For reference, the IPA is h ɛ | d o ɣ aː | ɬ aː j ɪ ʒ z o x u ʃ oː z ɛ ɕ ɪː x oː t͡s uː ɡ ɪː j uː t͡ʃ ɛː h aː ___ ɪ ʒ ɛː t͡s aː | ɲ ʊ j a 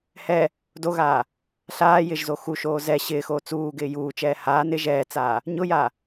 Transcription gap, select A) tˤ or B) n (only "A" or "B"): B